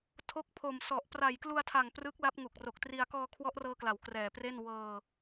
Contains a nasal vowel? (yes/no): no